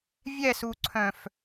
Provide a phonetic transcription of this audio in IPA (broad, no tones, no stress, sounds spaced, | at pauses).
vʲ ɛ s u ǀʰ œ̃ f